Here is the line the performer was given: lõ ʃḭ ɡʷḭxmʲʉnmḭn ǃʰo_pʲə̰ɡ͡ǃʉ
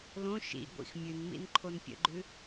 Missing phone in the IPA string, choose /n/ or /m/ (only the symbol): n